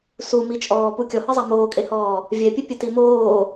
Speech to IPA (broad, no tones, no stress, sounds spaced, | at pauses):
s u m i t͡ʃʼ ɔː p u kʲ ɔ h ɨ zˤ a m oː kʼ e h ɔː | vʲ ɛ pʲ ɨ pʲ ɨ t i m oː